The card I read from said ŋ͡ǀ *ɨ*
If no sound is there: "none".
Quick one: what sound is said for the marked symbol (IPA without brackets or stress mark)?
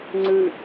ɨ